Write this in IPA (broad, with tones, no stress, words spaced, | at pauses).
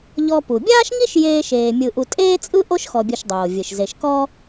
ʎɔ˦ pu˩bʲaː˥ʃŋi˥ʃ jeː˦ʃeː˨ mʲɯ˨ʔu˨ tʼeː˥t͡sʼɯ˥ ʔo˥ʃxɔ˨bʲɯ˨ʃdˤoː˩ vʲɯ˩ʃze˨ʃkɔ˥